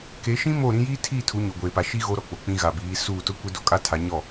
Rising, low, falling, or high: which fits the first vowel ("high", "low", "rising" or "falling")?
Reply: rising